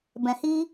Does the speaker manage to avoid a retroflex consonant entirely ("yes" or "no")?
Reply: yes